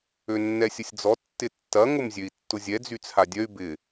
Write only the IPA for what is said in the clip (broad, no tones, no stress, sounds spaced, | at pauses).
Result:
ø nː ɛ sʲ ə sʲ d͡z ɔ tː ɪ tː ɐ ŋ ʊ m zʲ ø i̯ tː ʊ zʲ ɛ d͡z y t͡sʰ a dʲ œ y̯ b ɪ